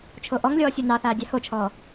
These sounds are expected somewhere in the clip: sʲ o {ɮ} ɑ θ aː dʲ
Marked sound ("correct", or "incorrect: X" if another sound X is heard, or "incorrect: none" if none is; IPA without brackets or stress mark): incorrect: n